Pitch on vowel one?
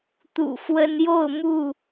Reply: low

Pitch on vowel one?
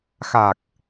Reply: low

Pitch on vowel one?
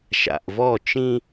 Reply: low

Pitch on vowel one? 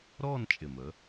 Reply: falling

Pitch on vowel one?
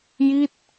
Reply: falling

